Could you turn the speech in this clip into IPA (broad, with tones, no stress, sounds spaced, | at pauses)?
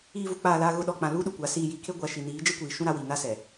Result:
iː˨ v u˨ k͡p aː˨ l aː˨ ɣ ʊ˨ ɗ ɔ˨ k͡p ã˨ l uː˦ ɗ u˨ kʷ a˨˦ s iː˨ j i˨˦ kʰ e˦ ɡʷ a˨ ʃ i˨ n iː˨˦ d͡ʒ e˦ kʷ iː˨ ʃ ũ˦ ɾ a˦ w i˨ n a˦ s ɛ˨